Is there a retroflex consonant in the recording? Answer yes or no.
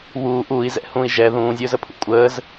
no